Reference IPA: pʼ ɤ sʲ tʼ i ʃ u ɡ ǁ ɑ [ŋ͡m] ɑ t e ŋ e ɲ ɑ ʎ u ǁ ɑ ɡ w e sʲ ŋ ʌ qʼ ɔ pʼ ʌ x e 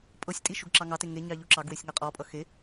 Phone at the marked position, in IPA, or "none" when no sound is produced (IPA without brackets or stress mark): ŋ